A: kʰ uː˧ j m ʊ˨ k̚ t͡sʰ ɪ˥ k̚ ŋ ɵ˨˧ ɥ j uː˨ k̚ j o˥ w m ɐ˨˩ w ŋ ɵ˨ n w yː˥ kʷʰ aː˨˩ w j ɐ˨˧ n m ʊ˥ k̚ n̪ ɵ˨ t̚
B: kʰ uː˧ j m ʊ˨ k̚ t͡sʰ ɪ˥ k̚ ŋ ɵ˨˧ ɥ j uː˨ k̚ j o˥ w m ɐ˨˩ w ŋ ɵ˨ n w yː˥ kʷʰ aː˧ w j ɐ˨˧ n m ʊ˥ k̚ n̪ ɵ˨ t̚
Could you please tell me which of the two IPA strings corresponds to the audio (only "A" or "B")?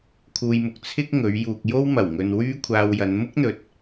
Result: B